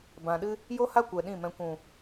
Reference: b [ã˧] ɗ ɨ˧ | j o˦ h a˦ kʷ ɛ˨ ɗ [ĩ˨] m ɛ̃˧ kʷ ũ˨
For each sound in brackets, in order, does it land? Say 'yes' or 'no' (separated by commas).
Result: no, no